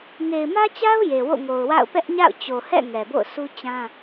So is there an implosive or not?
no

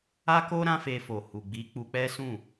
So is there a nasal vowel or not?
yes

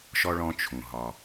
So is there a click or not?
no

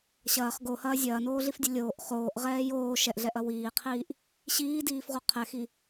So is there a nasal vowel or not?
no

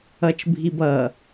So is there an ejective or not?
no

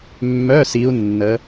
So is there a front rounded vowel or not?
yes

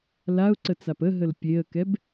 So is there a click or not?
yes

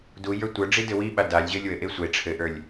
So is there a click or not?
no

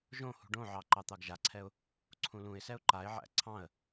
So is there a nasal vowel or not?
yes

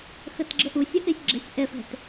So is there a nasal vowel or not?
no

